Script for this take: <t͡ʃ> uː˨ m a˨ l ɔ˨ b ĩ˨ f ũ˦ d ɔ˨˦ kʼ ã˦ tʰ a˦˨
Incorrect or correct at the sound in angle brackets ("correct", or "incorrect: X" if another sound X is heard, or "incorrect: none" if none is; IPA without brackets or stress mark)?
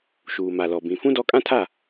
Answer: incorrect: ʃ